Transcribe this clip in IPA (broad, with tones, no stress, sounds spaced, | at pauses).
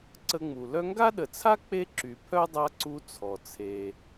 ǀ ə˦ ŋ͡m u˨ l œ˦ ŋ ɡ a˥ ɗ ə˨ t͡sʰ a˥ k͡p e˥ ǁ y˨ pʰ œ˥ dˤ a˦ ǀ u˦ t͡sʰ ɔ˩ t͡sʰ e˨